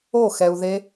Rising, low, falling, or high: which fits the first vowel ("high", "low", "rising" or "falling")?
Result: falling